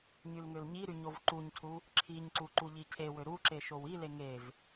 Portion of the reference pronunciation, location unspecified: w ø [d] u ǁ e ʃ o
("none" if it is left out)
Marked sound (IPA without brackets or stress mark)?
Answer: ɾ